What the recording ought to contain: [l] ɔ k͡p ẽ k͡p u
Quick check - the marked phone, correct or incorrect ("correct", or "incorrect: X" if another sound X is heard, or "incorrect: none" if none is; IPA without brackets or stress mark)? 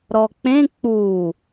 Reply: incorrect: ɾ